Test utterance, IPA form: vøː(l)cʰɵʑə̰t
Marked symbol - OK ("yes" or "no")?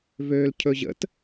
yes